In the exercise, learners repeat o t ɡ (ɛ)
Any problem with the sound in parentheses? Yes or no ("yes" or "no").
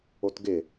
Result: yes